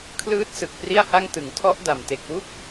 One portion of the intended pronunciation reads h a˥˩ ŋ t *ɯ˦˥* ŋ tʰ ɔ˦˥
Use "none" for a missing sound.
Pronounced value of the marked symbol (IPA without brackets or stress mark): ɯ˨˩